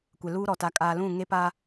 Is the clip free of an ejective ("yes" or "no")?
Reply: no